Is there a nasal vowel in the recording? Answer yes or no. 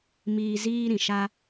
yes